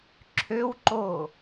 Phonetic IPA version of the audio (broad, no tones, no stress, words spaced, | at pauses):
ǁʰøwǃo